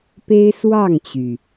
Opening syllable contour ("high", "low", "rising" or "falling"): high